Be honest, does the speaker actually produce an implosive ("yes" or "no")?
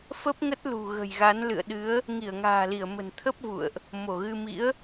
yes